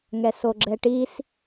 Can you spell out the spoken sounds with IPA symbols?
ŋ ɛ s o ɡ͡ǁ ɛ ʈ i s

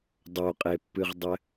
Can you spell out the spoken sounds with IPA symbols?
dˤ o qʼ e pː ɨ ʁ dˤ ɘ

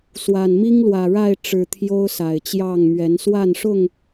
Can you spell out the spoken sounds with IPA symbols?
s w a˨˩ n m i˦ ŋ l w ä˨˩ ɻ a˥˨ ɪ̯ ʈ͡ʂ ɻ̩˨˩ t̪ʰ j o˦ ʊ̯ s a˨˩ ɪ̯ t͡ɕ j ɑ˥˨ ŋ m ɥ ɛ˨˦ n s w a˥˨ n ʂ ʊ˥˨ ŋ

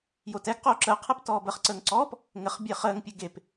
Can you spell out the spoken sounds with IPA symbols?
j o t ɛ ɡ q oː ǁ əː qʰ ɛ p t ɔː b ə χ ǀ əː ŋ ǀ ɔː p | ŋ ɘ χ bʲ e χ əː ŋ pʲ ɘ ɡ e p

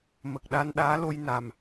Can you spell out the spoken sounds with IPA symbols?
m ə˨˩ k̚ ɗ a˧ n ɗ aː˧˥ l o˧ j n a˨˩ m

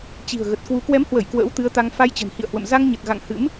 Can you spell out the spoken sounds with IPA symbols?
t͡ɕ i̤˨˩ ə̯ ɣ ə˨˩ t̚ k w u˨˦ k w ɛ˨˦ m h w ə˧˩ j k w ə̰ː˧˥ w t̪ ɨ˨˦ ə̯ t̪ a˧ ŋ f a˧ j t͡ɕ ə̤˨˩ n h ḭ˧˨ ə̯ h w ə̰˧˨ m z a˧ ŋ ɲ ə˨˩ t̚ ɣ a̰˧˨ ŋ h ɨ̰˧˥ m

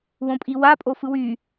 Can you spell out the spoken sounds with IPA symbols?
w õ pʼ i w a pʼ o f ɯ w y

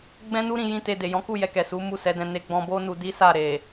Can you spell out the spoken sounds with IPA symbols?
ɡ͡b ɛ̃˦ n u˦ ɾ ĩ˧ j ĩ˦ t e˧ d e˨ j ɔ̃˨˦ k u˦˨ j ɛ˧ k ɛ˨ s u˨˦ m u˦˨ s ɛ˨˦ d ɛ̃˧ n e˧ ɡ͡b ɔ̃˧ b o˦ n u˧ d i˦ s a˦˨ ɾ e˨

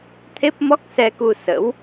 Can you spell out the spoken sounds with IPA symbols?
t̪ʰ e˦˥ p̚ m ɔ˦˥ k̚ s ɛ˧ k u˧ s ə̰˧˥ w

